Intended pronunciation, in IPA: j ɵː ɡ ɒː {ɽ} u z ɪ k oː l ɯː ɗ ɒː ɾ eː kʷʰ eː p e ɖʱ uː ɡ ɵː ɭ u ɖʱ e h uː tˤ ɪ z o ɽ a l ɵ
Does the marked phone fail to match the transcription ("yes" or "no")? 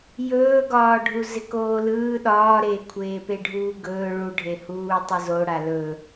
yes